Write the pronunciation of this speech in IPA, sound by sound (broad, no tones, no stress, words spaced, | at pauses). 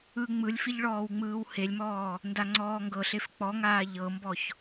ɯ ŋ͡mɯlʲfiʎ ɭɔːwŋ͡mɯːwhelʲmɔː | ndaŋ͡ǀɔːŋɡɤɬef k͡pɔŋaː ʎɤmbɔç